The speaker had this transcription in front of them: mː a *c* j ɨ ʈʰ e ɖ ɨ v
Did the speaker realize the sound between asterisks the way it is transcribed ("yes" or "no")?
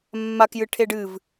no